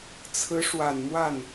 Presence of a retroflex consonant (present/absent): present